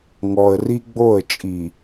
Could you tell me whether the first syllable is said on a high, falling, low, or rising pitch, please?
low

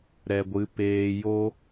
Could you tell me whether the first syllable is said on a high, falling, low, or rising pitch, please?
low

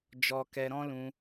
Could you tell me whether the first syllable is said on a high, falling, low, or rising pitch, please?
high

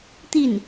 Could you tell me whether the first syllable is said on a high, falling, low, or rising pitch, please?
falling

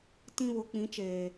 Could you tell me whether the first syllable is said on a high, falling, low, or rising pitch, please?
high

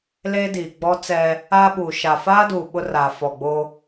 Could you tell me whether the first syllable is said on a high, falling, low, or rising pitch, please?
high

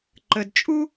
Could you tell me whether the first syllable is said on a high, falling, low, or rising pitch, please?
low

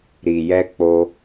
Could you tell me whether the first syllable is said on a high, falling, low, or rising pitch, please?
low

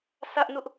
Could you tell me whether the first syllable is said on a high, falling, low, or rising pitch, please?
high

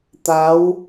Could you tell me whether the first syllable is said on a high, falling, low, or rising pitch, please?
rising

